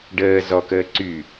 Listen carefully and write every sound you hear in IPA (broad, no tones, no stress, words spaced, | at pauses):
ɖəː zɔkəː ǀy